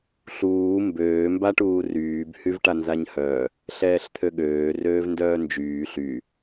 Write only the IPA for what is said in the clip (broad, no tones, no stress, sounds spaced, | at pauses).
ɬ uː m b øː m b a ʈ uː r yː b h y v ʈ a n z a ɲ h œ | ɬ ɛː ɬ t̪ʰ ø ɠ øː r øː v n d œː n d͡ʒ yː ɬ y